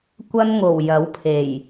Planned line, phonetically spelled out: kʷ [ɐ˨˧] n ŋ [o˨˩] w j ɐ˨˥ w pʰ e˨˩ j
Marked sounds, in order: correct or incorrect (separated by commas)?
incorrect, correct